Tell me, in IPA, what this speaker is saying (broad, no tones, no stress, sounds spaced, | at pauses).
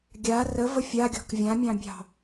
ɡʲ a r ə v ə fʲ a ɡʲ ɔ̤ k vʲ ã mʲ ɑ̃ bʲ ɑ̤